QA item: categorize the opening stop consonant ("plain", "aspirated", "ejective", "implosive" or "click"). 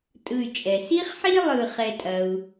ejective